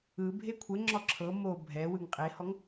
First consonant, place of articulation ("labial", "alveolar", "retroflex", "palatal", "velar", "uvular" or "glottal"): labial